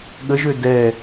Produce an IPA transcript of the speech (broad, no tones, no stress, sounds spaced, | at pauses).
ɠ ə ʒ ø d ɛ